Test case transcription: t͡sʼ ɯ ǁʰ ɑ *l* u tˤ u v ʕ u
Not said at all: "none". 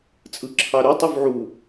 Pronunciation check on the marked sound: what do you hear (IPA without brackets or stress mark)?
ɾ